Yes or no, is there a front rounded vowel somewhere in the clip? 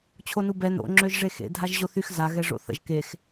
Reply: yes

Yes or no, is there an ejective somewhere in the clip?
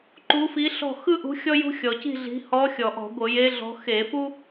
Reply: no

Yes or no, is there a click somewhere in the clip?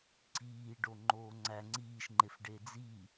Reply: yes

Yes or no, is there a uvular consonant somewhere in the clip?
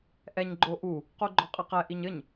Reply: yes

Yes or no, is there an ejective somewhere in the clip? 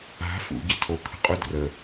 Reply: yes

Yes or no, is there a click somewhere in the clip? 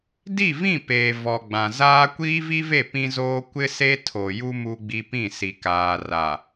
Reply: no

